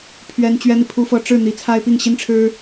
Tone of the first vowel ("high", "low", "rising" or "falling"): high